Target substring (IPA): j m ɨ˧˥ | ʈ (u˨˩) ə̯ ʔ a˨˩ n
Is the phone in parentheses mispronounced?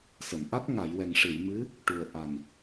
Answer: no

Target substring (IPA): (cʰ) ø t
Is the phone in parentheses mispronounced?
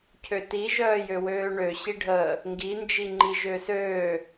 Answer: no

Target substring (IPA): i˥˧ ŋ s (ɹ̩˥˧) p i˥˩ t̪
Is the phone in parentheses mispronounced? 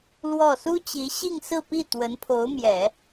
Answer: no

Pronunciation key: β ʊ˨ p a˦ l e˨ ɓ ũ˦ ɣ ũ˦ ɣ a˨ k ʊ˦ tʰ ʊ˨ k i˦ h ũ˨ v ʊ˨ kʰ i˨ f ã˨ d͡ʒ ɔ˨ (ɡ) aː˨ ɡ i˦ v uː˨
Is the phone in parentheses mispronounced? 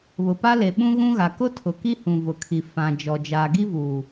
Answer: yes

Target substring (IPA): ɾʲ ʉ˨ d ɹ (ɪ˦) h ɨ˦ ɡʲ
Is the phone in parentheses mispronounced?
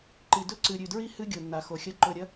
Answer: yes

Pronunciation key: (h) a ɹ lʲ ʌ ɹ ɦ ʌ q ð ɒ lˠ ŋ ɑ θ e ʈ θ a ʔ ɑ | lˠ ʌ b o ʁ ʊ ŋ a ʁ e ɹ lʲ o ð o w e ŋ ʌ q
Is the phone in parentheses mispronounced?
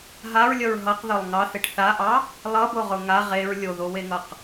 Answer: yes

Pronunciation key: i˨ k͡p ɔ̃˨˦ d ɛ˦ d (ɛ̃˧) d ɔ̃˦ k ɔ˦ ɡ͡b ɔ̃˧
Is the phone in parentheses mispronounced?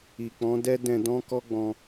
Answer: no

